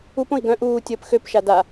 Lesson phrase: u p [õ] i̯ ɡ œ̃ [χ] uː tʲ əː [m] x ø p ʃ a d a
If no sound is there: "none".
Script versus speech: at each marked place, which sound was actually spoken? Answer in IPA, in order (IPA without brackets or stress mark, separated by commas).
õ, ʔ, p